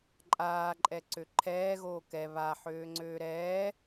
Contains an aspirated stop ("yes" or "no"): yes